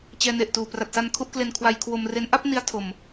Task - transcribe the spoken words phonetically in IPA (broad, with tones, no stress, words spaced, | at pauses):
t͡ɕɛː˧ne˨˩ʔtuː˨˩ pra˨˩t̚sa˧n kʰu˥˩ʔkle˧n kʰwa˧jkʰwo˧mre˦˥n ʔa˥˩p̚ni˧a̯ tʰo˨˩m